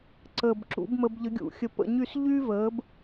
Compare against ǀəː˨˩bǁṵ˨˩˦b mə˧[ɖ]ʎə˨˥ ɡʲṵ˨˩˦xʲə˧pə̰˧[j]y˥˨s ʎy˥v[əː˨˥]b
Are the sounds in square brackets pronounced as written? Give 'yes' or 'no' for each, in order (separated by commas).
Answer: no, no, yes